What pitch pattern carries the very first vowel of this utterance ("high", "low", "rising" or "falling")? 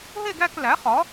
falling